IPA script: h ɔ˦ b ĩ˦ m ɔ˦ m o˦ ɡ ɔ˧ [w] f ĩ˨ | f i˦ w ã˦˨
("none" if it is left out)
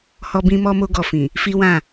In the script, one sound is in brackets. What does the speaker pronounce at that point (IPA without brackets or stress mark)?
none